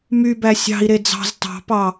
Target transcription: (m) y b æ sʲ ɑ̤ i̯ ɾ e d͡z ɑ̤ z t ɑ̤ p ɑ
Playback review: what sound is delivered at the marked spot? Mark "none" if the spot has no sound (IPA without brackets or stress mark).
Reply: m